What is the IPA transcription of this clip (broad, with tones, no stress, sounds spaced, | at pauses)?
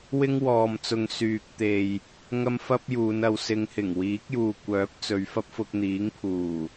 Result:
w ɪ˥ ŋ w ɔː˨ m t͡s ʊ˨ ŋ s yː˨ k̚ t̪ e˨ j | ŋ ɐ˥ m f ɐ˥ p̚ j uː˨˧ n ɐ˨˧ w s ɪ˨˧ ŋ h ɪ˨˩ ŋ w iː˨˥ k̚ j uː˨ kʷ œː˨˥ p̚ t͡s ɵ˨˧ ɥ f ɐ˥ p̚ f ʊ˧ k̚ n̪ iː˨˥ ŋ pʰ uː˨˩